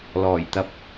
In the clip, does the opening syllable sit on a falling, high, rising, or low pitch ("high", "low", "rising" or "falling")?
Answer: low